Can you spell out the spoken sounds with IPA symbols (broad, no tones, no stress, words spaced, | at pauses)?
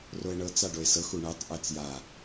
roe̯ɳɤt͡s aɖoe̯sɤx uɳɛtˤ ʔɛt͡sja